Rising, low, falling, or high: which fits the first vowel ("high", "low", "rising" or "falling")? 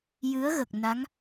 rising